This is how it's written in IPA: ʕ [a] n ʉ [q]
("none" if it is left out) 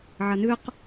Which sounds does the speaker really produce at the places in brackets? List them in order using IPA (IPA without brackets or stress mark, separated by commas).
ɐ, q